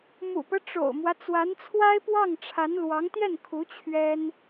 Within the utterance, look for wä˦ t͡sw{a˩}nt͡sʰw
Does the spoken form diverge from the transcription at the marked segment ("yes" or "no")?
yes